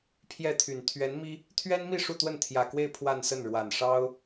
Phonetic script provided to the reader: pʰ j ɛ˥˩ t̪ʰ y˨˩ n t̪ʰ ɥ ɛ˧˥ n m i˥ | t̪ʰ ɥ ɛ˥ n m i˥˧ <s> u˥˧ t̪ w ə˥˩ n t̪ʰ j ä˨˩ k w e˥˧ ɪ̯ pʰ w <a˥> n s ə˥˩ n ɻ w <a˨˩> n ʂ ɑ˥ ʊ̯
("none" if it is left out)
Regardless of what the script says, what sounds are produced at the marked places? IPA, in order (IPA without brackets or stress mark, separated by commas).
ʂ, a˥˧, a˨˩